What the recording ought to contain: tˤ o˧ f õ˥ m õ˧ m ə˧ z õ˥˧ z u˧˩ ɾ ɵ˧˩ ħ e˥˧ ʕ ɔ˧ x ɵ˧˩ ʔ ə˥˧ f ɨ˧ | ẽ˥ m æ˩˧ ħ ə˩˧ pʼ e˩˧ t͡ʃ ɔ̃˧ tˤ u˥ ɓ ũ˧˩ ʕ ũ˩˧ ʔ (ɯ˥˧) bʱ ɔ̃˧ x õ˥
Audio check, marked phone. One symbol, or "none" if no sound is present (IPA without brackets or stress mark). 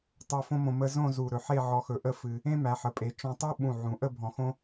ə˥˧